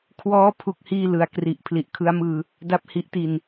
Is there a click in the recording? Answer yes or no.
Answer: no